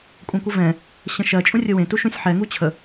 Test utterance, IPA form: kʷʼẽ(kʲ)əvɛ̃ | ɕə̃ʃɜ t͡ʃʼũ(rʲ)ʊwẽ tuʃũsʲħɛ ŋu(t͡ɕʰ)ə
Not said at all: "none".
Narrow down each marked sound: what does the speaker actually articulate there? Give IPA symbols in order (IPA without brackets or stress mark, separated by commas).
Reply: kʷ, rʲ, t͡ɕʰ